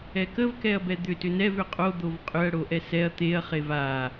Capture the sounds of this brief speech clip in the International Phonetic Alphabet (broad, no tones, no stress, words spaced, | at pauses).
ɛkəvkɛɐ̯bɛ d̪ʏtʏ nɛv ʏqʼo d̪ovqʼʏɐ̯ ɽoʔɛsɛɐ̯ t̪eɐ̯χev a